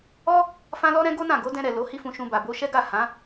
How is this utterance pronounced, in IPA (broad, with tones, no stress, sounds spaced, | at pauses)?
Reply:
ɔ˦ | f ã˦ l ɔ˦ ɾ ɛ̃˦ ɡ o˦ n ã˦˨ ɡ o˨˦ d ɛ̃˧ ɾ ɛ˨ l o˨˦ h i˦ f ũ˧ ʃ ũ˧ b a˨ b o˧ ʃ ɛ˦ ɡ a˦˨ h ã˨˦